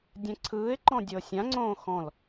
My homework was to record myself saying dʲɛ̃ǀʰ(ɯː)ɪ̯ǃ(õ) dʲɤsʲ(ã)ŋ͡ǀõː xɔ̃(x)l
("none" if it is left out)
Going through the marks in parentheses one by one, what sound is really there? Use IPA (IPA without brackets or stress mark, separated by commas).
ɯː, ɔ̃, ã, none